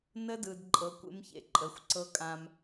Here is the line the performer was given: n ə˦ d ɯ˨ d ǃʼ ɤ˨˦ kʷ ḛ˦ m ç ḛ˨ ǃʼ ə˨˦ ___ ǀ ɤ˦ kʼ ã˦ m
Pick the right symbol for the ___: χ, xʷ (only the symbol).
xʷ